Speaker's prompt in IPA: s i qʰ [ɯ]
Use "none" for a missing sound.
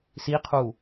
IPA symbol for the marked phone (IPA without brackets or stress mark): u